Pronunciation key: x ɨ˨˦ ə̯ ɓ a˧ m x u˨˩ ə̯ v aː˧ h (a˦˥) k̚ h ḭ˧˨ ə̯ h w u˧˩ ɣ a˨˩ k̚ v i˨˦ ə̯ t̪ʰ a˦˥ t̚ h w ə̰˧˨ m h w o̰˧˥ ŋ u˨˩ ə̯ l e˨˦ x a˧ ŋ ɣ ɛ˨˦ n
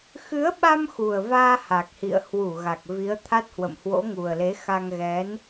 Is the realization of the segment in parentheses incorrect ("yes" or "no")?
yes